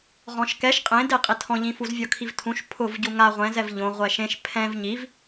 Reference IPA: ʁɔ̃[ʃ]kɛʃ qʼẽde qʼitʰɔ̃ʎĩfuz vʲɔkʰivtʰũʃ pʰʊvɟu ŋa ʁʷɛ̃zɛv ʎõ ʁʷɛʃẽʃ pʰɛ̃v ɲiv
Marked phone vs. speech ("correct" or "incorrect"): correct